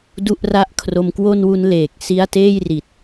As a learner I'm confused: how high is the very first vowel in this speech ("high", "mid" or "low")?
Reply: high